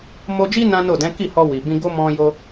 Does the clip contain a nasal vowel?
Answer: yes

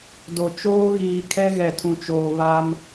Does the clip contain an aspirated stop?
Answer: yes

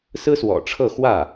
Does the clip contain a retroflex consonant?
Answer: yes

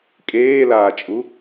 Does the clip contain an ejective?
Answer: yes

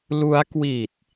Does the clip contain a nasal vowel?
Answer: no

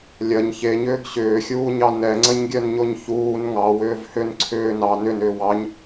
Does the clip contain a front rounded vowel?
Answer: yes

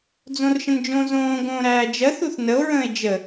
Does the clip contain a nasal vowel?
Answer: yes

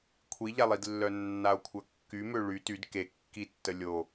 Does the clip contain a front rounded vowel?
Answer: yes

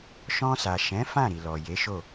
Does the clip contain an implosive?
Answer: no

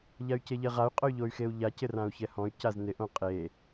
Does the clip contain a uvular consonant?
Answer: yes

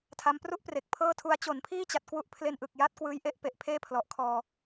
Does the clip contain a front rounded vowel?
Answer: no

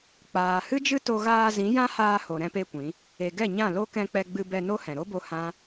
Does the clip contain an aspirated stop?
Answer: no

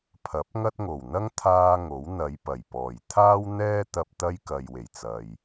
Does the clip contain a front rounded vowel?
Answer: no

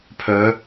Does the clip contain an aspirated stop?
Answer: yes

